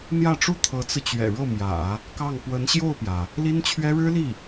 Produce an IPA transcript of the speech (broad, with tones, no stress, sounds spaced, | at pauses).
n̪ j ä˥˩ ʈ͡ʂ u˥ t̪ʰ ɤ˧˥ t͡s ɹ̩˧ t͡ɕ ɥ ɛ̰˨˩ ɻ ɤ˥˩ m j ä̰˨˩˦ | k ɑ˥˩ ŋ p w ə˧˥ n ɕ j o˥˩ ʊ̯ p j ä˩ | l i˥ n t͡ɕʰ ɥ ɛ˥ ɻ ɻ̩˥ l i˥˩